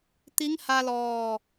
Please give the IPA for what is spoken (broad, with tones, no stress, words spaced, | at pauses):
t̪i˧˥ŋha˧lɔː˧˩